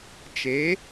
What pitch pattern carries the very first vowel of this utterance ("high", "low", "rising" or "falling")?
rising